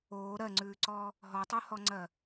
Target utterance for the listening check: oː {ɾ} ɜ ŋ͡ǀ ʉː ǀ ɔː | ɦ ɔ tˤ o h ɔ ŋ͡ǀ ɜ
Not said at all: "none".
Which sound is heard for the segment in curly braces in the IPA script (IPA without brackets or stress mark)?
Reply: ɾ